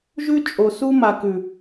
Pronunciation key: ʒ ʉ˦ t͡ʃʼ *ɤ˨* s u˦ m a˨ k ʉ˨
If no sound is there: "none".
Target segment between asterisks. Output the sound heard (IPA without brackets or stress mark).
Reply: o˨